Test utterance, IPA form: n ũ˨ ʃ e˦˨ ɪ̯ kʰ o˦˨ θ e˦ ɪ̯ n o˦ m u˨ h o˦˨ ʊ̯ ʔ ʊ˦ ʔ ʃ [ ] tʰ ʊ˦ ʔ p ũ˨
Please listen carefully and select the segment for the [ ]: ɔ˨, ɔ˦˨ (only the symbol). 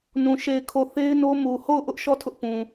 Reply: ɔ˦˨